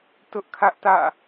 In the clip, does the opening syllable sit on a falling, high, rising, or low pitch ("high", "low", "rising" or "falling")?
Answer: high